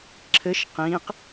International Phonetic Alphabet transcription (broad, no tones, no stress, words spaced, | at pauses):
ǁʰɘʃ qĩq